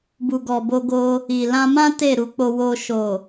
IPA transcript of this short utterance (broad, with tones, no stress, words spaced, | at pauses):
bu˨ɡɔ˨ bo˧ɡo˧ | i˨lã˧mã˦ te˦˨ɾu˧k͡po˧wo˧ ʃo˨